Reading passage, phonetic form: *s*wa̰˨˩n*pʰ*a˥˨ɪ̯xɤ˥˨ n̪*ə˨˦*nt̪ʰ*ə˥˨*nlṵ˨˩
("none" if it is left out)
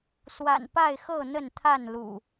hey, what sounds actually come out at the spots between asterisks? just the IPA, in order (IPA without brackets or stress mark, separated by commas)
s, p, ə˥˨, a˥˨